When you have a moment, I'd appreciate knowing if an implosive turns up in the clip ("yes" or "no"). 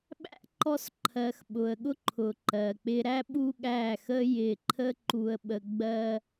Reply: yes